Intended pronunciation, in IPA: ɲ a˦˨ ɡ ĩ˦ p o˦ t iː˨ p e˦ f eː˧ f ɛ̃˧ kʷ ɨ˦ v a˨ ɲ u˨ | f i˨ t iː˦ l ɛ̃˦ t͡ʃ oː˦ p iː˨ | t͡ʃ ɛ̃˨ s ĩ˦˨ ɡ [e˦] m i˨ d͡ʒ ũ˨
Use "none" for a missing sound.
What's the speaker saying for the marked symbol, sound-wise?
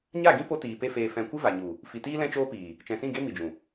e˦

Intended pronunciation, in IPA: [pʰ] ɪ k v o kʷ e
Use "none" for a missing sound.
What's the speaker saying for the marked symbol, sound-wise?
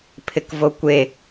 pʰ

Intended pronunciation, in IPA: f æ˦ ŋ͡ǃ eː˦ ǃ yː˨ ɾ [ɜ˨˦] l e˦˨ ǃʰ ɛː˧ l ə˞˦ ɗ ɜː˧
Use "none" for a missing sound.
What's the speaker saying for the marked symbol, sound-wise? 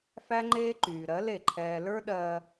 ɜ˨˦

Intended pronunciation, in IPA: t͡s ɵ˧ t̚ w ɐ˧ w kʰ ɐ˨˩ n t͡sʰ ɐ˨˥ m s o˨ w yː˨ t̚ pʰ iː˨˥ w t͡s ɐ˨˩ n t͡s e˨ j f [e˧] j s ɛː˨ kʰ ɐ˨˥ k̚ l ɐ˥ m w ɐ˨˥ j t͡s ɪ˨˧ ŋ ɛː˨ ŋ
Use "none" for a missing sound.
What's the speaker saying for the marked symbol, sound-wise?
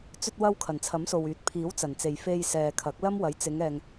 e˧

